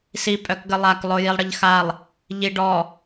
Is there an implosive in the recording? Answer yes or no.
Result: no